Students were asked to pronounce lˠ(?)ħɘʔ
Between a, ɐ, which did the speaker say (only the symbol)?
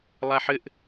a